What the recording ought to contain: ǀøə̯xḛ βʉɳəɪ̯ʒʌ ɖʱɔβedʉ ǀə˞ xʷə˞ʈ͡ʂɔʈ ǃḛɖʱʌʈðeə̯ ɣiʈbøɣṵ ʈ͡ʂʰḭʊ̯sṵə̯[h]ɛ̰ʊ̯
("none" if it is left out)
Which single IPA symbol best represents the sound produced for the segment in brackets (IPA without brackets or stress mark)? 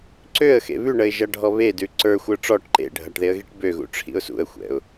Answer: xʷ